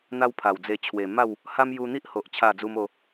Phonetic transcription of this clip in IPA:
n̪a˦wpʰa˨˩wd͡ze˧ t͡ɕʰwe˨˩ma˥˧w | ha˦m ju˧n̪i˦ʔho˨ʔ t͡ɕʰa˥˧d͡zu˦m o˦

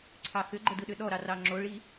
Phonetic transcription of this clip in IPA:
ǀʰɑxʏɡ͡ǃə dɯɗʏɗɔɾɑ rɑŋ͡ǁoɭi

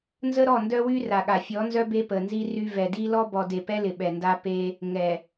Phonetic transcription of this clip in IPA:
nzə˦ɾɔ˦˨ndœ˦ wy˦ ra˨ɠa˨ fʲɔ˨˦nzœ˦ be˦pə˨nzi˦ry˦ vɛ˨ di˦lɔ˦ bɔ˨de˨pɛ˦ lɪ˨ɓɛ˨nda˦ pe˦ | ŋɛ˨

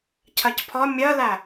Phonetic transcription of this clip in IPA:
cʰɜcpʰɒ mʲɜlæ

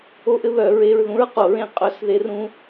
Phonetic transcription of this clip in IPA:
o˥ʔɘ˥βœ˨˩˦ ɹe˧˥˧ɹðũ˥ɹqo˨˩˦ɹẽ˥˨ qʼœ˥˨s ðe˥rũ˥

